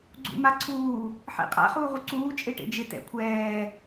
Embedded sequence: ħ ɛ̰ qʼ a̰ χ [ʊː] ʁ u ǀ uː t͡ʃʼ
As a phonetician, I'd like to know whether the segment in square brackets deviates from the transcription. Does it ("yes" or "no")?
yes